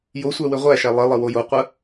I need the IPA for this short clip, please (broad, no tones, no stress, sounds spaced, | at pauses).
j o sʷ æ w ɘ ʁʷ æ ʃ æ lˠ ɘ lˠ ə w o j o qʷ ə